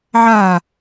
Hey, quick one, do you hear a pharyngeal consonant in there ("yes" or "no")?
yes